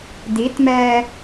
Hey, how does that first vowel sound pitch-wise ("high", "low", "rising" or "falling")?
rising